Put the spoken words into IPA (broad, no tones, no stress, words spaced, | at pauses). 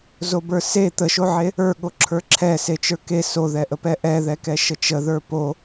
zobə˞se t̪əʃoʕe | ə˞ɠoǁʰə˞ ǁʰɛ set͡ʃə˞ke soðɛʔəpɛ ʔɛðɛkɛ ʃət͡ʃəðə˞ po